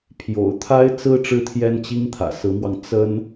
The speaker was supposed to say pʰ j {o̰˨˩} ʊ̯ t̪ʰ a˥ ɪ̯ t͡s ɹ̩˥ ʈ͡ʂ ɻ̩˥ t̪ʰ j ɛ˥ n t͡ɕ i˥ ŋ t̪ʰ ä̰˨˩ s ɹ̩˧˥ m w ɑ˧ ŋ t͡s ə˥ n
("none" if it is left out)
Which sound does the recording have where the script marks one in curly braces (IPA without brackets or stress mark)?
o̰˨˩